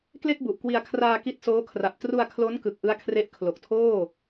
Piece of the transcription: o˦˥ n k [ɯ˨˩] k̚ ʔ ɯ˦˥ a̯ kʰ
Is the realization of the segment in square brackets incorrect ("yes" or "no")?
no